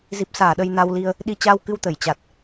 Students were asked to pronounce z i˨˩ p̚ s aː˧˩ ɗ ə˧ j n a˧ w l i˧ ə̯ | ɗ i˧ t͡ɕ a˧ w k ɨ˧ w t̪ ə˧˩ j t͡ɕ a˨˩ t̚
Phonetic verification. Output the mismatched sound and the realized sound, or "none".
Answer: none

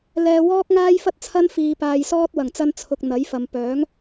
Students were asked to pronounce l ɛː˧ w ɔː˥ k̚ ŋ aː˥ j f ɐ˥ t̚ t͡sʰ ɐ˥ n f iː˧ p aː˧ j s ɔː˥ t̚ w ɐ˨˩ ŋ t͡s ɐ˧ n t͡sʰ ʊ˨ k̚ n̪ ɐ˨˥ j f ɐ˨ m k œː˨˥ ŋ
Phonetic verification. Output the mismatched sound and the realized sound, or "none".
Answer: k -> p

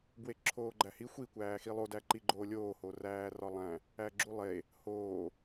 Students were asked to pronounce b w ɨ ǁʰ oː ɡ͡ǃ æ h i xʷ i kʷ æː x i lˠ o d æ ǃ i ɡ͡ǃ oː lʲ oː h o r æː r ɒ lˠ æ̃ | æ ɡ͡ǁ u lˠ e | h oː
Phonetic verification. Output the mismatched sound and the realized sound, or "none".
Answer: ɨ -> e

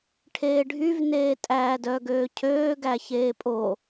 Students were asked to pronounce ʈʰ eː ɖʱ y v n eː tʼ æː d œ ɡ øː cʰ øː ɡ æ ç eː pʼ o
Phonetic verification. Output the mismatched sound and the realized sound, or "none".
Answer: none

